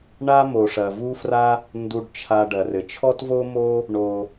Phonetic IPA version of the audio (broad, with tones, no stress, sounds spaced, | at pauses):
ɳ a˦ m o˩ ʂ ɐ˩ v u˦ f r a˦ | n d u˨ ɖ t͡ʃʰ a˨ ɖ ɐ˩ r ɘ˩ t͡ʃʰ ɔ˥ t v o˥ m o˦ | ɳ o˩